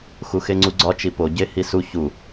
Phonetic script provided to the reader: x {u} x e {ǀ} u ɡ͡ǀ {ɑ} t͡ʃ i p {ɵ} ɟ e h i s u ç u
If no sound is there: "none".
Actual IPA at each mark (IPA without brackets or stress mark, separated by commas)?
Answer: u, ŋ͡ǀ, ɒ, o